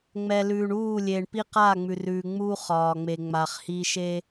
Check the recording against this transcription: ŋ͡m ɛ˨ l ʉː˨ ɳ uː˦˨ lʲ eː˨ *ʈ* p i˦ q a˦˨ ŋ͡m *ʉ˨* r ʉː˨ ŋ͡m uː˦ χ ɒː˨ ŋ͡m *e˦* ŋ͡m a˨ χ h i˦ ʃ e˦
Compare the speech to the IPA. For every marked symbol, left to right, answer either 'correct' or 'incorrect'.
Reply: incorrect: ɳ, correct, incorrect: e˨

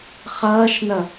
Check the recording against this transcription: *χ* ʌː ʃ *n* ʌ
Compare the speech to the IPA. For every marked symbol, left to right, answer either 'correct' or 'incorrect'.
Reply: correct, correct

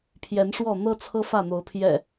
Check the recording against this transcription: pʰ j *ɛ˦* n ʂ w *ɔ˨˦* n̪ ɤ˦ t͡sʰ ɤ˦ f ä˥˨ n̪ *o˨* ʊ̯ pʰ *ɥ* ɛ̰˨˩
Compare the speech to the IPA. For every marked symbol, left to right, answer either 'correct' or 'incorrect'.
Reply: incorrect: ɛ˨˦, incorrect: ɔ˥˨, incorrect: o˨˦, incorrect: j

